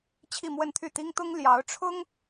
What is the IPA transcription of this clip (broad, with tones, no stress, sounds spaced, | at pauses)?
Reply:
t͡ɕʰ i˥˧ m w ə˥˧ n t̪ʰ y˥˩ t̪ i˥ ŋ t̪ ʊ˥ ŋ l j ɑ˧˥ ʊ̯ ʈ͡ʂʰ ʊ˥ ŋ